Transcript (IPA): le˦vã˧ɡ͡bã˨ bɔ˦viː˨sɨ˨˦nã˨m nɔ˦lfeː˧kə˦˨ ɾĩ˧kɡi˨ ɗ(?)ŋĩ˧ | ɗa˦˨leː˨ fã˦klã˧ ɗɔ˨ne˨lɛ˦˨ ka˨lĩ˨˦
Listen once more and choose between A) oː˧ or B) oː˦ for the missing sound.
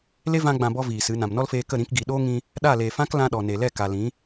B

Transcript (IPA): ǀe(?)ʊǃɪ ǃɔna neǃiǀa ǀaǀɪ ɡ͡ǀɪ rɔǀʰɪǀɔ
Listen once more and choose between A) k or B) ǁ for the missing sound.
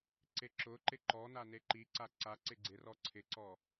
B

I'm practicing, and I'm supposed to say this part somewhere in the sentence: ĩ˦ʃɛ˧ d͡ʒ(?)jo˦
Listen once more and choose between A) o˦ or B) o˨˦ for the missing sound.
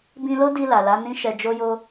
A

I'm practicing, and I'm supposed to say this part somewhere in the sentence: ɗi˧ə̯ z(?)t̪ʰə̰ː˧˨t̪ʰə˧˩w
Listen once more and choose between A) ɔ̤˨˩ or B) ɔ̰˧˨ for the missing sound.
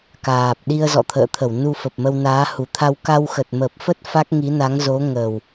B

